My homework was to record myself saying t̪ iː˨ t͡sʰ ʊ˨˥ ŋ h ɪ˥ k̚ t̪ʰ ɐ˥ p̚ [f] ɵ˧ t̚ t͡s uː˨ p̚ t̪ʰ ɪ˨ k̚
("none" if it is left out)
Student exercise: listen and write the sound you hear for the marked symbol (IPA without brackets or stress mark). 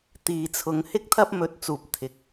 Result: m